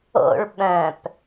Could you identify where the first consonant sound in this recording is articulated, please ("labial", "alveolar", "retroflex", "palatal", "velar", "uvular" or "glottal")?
retroflex